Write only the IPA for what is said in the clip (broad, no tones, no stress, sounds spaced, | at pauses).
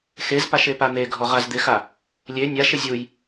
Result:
x e z p a ʃ e p a n̪ e ɡʱ ɔ ʁ a z d̪ ɪ x a | lʲ e nʲ a ʃ ɪ zʲ u j